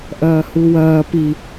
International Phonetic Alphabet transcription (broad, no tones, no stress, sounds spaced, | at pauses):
ʔ ɐː h u w ɐː p i